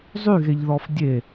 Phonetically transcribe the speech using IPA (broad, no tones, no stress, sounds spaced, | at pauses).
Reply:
zˤ y ɣ e ʎ ð ɔ f dʲ e